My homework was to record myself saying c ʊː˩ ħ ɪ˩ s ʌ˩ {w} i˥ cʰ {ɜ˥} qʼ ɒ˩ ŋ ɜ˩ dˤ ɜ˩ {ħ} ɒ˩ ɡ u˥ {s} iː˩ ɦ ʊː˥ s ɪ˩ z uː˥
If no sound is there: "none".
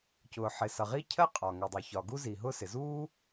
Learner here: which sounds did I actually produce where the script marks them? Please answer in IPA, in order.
ʁ, ɜ˥, ç, z

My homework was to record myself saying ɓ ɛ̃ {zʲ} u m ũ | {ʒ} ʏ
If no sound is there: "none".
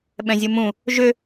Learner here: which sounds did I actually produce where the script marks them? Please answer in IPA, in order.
zʲ, ʒ

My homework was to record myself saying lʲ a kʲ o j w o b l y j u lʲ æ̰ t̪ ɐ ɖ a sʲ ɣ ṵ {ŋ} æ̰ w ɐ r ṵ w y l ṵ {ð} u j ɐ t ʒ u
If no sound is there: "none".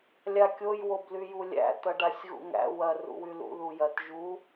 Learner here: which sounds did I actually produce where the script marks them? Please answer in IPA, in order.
ŋ, ð

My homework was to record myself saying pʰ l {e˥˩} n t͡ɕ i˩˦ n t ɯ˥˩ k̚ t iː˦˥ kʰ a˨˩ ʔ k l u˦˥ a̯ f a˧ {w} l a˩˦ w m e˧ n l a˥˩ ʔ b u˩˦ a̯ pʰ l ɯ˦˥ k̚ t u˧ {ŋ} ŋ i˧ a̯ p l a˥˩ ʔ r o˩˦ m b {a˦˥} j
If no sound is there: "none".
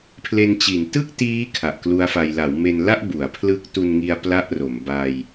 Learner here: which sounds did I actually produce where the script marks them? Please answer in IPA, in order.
e˧, j, n, a˧

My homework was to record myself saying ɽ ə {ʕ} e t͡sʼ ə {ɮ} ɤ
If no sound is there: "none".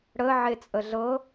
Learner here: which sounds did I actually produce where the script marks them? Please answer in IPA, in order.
ʕ, ɮ

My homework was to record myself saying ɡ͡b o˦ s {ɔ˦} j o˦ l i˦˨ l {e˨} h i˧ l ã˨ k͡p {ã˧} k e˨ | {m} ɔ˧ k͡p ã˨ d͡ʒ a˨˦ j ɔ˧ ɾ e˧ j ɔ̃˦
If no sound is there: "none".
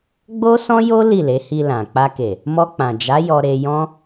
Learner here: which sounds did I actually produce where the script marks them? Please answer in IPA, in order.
ɔ̃˦, e˨˦, a˧, m

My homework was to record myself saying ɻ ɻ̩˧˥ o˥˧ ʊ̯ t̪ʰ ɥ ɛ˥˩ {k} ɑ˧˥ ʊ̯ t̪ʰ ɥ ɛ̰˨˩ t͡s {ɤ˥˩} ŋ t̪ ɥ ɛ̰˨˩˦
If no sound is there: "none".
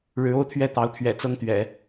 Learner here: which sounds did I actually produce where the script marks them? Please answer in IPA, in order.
t̪, ɤ˥˩

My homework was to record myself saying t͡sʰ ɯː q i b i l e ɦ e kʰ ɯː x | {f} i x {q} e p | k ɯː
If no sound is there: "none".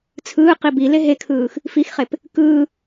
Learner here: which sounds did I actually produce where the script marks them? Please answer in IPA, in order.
f, χ

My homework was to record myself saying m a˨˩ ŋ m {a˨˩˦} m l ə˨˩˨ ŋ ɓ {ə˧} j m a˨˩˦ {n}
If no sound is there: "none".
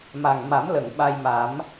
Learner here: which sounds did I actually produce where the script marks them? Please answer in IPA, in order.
a˨˩˦, a˧, m

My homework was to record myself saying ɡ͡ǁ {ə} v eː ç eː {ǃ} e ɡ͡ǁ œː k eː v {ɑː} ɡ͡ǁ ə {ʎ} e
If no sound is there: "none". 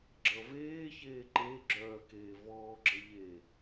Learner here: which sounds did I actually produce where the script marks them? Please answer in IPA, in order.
ʌ, ǃ, ɔː, ʎ

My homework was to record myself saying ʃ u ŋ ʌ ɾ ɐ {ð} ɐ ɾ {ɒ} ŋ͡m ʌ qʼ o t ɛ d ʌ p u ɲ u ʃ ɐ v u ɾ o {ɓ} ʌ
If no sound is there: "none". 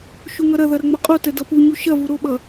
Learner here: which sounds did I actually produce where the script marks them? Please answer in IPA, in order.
ð, ʌ, ɓ

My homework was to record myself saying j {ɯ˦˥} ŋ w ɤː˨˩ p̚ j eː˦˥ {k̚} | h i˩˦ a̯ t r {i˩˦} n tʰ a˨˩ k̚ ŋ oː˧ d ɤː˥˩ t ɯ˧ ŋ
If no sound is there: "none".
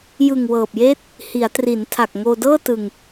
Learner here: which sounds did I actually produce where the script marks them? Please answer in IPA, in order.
ɯ˨˩, t̚, i˩˦

